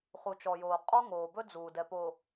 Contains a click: no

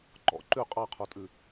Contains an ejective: yes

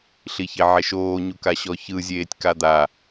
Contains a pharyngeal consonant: yes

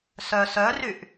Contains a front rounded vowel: yes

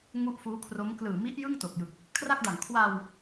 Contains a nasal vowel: no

